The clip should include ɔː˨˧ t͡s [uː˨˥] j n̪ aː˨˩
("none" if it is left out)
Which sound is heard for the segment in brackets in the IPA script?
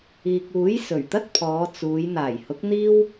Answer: uː˨˧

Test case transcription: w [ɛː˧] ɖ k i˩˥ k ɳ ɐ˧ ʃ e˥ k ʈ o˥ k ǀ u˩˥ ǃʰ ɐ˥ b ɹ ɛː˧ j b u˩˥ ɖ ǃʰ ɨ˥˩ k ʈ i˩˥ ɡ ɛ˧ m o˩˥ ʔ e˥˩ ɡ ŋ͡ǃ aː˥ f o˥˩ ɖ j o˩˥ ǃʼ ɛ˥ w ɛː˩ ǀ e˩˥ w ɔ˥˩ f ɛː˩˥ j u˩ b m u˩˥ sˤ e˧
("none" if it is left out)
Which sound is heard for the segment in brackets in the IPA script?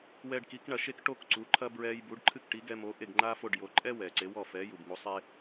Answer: ɛː˧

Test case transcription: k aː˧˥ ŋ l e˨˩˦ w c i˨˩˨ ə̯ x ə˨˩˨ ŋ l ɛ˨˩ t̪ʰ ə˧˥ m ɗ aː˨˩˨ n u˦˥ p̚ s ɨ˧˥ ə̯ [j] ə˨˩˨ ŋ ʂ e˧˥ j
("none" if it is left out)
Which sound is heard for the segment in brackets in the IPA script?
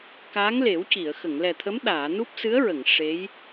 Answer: ɹ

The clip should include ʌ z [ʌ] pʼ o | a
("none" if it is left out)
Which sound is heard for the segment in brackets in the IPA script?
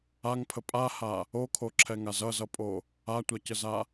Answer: ʌ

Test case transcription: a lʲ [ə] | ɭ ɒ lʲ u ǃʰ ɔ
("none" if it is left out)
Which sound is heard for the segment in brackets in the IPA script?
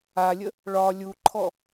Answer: ə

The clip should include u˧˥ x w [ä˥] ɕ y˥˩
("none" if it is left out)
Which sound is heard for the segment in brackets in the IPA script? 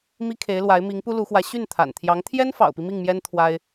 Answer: ä˧˥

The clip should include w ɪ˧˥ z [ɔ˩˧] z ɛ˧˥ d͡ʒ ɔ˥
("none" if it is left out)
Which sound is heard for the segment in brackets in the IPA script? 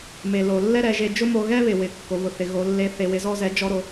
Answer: ɔ˥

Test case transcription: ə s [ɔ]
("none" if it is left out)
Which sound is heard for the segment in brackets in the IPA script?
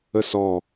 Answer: ɔ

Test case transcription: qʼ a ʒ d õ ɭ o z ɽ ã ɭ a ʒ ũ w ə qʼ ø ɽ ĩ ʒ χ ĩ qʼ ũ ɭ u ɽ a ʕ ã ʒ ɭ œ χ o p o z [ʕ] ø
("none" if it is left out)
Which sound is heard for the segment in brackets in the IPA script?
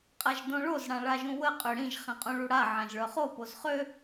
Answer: χ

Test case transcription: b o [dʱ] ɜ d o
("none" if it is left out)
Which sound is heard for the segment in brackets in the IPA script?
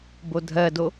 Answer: dʱ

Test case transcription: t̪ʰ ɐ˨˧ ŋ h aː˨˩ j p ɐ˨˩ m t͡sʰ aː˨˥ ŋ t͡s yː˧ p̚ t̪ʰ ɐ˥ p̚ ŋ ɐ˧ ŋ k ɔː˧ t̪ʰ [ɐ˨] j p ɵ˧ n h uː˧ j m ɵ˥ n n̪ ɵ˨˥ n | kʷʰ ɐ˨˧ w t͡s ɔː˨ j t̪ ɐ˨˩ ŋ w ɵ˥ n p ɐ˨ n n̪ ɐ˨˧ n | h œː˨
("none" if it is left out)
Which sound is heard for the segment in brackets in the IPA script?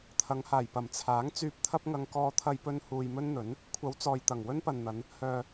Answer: ɐ˧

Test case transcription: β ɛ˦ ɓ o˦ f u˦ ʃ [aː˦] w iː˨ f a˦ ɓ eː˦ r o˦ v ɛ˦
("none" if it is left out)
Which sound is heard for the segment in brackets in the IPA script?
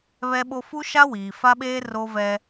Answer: a˦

